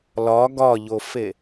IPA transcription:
l ɒ ɡ ɒ ʎ o f e

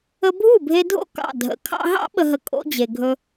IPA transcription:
ə˧ bʱ u˥˩ bʱ e˧ dʱ o̰˥˩ k ɑ̰˥˩ dʱ ə̰˩˥ kʰ ɑ̰˧ ɦ ɑ̰˥ ɓ ə˧ ɦ ə˧ kʼ o̰˥ d͡ʑ e˩ ɡʱ ɵ˧

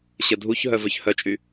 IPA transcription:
ɕ ə dʱ u ç ɦ œ v œ ç h œ t͡ʃʼ y

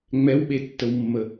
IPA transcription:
ŋ͡m ɛ w ɓ e tː ə w mː ə

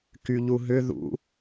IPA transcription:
k y ʎ u ɦ ʏ ð ṵ

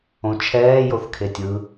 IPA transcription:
õ t͡ʃʰ ɛː j o θ kʰ e tʲ ɯ

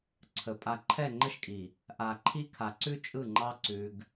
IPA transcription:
ǀʰ ə˨ pʼ a˨ ǃʰ ɛ˦˨ ŋ͡ǃ ə˦ ʃ kʼ i˨ | ʔ a˨ ǃʰ i˦ kʰ a˨ ǀ ʉ˦ t͡ʃʼ ɯ˦˨ ŋ͡ǃ ɑ˦ ǀ ʉ˦ ɡ

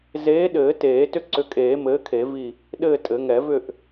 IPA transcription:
z eː˨˥ ɗ ɘː˨˩˦ t eː˨˩˦ t ʏ˦˨ ǀ ʏ˨˥ kʼ eː˨˩˦ m ɘː˨˥ kʰ e˨˩˦ v i˦˨ | ɗ ɘː˦˨ tʼ ɘ˨˩˦ ŋ ɛ˨˩˦ v ʏ˦˨ ʔ

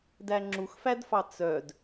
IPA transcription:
d æ ŋ͡ǁ u x f æ d f ɑ t͡s œ d

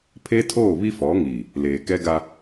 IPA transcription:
pʰ e˦ tʰ oː˦˨ β i˦ f ɔ˨˦ ŋ iː˨ | l eː˨ k ɛ˦ ɡ a˦

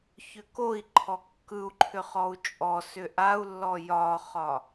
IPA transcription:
ç ʏ k o i̯ ǃʰ ɔ kː ɯ u̯ ǃʰ ʏ χ ɔ u̯ t͡ʃʼ ɔ s ʏ ʔ a u̯ lː ɔ j ɒ χ ɒ

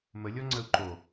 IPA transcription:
m ə lʲ ɔ ŋ͡ǀ ə u̯ ǃ o

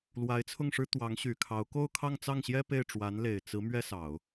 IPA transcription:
l w a˧˥ ɪ̯ t͡sʰ ʊ˥˩ ŋ ʂ ɻ̩˥ t̪ w ɑ˧˥ ŋ ɕ y˨˩ kʰ ɑ˧˥ ʊ̯ k o˥˧ ʊ̯ kʰ ɑ˥˧ ŋ t͡s ɑ˥˩ ŋ ɕ j ɛ˥ p e˥˩ ɪ̯ ʈ͡ʂ w a˧˥ n l e˨˩ ɪ̯ t͡s ɹ̩˧˥ m ɥ ɛ˥ s ɑ˨˩˦ ʊ̯

